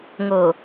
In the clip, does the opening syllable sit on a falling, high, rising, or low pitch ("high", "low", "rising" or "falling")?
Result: low